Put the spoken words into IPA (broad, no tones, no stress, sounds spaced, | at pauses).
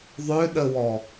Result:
ðˤ ø ɗ ə w ɔ